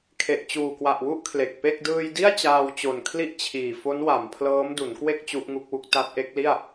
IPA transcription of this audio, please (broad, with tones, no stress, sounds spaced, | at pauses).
kʰ e˨˩ ʔ t͡ɕ uː˨˩ k w a˨˩ ʔ w u˥˩ ʔ kʰ l e˨˩ k̚ p e˥˩ k̚ d ɯː˧ j d i˥˩ a̯ t͡ɕ aː˧ w t͡ɕ o˨˩ n kʰ l i˥˩ ʔ t͡ɕʰ iː˨˩ f o˦˥ n w a˩˦ m pʰ l ɤː˦˥ m d u˩˦ n k w e˥˩ k̚ t͡ɕ u˦˥ ʔ ŋ u˦˥ k̚ w u˦˥ k̚ t a˦˥ t̚ ʔ e˦˥ k̚ l i˥˩ a̯